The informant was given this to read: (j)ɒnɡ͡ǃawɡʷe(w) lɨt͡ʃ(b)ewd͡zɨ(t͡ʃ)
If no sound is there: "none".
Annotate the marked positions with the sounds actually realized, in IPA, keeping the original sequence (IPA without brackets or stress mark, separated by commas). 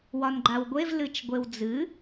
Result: w, v, ɡʷ, none